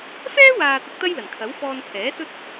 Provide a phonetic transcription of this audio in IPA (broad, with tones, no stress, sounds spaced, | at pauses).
f ɛː˥ w aː˨ t̪ ɐ˧ k̚ t̪ ɐ˥ j l ɐ˨˩ n kʰ ɐ˨˥ w f ɔː˧ n pʰ ɛː˨˥ s ɵ˥ t̚